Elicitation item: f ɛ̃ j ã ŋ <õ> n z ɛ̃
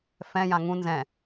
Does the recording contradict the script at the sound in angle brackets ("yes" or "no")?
yes